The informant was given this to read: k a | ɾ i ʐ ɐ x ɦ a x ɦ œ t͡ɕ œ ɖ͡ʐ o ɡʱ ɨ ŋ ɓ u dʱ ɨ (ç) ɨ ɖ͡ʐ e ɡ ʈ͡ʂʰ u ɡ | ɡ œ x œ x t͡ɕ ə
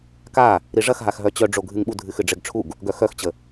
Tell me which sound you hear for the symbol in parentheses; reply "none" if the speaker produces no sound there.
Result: x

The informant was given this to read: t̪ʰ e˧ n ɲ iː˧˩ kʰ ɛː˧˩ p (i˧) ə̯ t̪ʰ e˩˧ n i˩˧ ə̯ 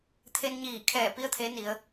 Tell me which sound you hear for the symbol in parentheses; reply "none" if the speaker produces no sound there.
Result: i˧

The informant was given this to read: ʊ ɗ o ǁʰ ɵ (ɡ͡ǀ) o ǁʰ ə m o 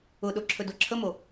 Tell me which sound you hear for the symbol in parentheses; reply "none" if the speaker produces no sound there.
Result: d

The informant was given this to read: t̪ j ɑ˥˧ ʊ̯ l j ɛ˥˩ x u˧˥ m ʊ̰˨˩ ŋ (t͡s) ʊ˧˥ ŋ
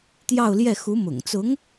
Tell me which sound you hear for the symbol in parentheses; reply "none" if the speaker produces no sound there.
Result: t͡s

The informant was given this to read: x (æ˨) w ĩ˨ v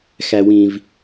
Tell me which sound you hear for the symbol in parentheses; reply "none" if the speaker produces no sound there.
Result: æ˨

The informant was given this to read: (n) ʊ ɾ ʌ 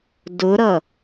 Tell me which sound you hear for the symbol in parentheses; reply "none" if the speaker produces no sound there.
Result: d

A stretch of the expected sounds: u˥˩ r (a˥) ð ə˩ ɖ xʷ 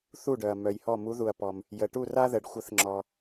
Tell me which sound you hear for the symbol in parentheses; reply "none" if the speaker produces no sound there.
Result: a˥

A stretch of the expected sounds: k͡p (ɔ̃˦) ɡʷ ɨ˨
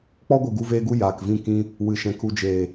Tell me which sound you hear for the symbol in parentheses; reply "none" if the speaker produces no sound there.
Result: ɔ˦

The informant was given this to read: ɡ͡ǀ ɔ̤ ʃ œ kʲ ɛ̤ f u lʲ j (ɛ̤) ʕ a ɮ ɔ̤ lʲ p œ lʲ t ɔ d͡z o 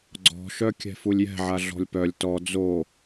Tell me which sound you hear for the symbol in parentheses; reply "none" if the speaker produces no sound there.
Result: ɛ̤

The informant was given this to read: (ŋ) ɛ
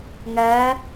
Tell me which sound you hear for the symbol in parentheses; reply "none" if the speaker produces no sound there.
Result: ŋ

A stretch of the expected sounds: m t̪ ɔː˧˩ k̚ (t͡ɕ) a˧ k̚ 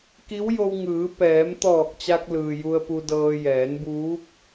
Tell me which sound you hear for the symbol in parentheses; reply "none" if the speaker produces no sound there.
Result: t͡ɕ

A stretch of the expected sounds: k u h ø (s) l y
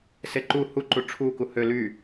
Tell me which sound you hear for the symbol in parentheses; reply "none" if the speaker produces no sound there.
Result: none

